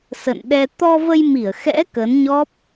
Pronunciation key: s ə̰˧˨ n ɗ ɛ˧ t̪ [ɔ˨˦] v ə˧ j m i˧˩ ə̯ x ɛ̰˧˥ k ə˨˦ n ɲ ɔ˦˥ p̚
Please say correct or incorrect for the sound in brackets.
incorrect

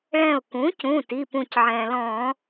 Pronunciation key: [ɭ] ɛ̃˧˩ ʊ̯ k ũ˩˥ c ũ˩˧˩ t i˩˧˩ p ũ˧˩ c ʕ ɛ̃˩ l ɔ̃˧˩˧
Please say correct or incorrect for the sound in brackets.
correct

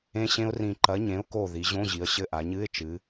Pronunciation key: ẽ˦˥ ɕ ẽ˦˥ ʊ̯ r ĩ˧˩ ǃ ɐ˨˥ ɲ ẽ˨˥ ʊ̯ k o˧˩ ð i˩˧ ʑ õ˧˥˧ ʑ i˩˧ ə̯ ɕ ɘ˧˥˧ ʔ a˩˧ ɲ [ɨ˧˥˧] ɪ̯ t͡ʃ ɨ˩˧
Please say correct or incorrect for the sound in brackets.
correct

